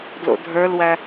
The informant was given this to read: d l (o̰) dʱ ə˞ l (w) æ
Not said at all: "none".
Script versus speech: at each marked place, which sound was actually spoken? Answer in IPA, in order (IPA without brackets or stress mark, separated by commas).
o̰, w